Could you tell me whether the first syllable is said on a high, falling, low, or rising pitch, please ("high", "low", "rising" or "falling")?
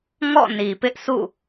falling